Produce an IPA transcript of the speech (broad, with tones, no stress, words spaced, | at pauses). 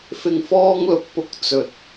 fɪ˨ŋfɔː˧ŋ lʊ˨˥k̚pʊ˧k̚ t͡sɵ˨t̚